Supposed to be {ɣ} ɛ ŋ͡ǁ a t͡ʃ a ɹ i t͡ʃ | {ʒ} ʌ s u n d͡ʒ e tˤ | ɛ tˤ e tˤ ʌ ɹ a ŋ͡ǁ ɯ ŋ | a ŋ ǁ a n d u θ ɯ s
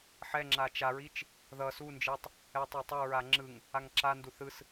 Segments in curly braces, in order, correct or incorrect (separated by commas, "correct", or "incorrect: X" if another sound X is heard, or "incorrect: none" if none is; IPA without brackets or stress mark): incorrect: ħ, incorrect: ð